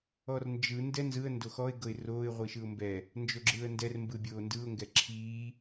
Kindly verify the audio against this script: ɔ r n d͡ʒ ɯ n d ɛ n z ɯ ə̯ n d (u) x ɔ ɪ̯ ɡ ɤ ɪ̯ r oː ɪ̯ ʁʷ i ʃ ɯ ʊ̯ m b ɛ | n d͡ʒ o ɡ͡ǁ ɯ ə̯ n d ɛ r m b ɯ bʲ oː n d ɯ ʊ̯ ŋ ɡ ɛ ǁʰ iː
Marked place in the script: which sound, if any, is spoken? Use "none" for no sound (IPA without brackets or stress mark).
o